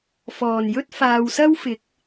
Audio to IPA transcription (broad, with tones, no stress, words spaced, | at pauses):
fɔː˨˩njɵ˥t̚ faː˨wsɐ˥wfɪ˨˥k̚